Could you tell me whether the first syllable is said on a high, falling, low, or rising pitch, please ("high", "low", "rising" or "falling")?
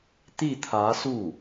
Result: falling